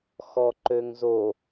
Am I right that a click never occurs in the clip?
no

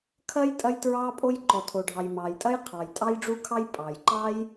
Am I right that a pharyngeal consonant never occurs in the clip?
yes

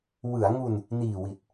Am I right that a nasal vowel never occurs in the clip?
yes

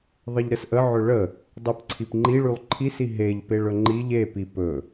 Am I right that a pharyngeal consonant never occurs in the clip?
no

